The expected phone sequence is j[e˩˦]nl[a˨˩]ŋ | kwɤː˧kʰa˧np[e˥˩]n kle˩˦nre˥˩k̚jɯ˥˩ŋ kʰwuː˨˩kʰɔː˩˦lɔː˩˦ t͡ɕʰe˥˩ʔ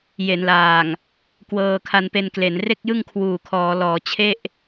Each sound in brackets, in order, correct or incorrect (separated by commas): correct, incorrect, incorrect